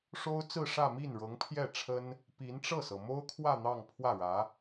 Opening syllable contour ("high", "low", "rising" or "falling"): high